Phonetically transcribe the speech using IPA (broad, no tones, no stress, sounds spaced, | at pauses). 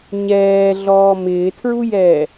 ɲ ɛː ɮ ɔː m ɪː tʰ ɹ u j ɛː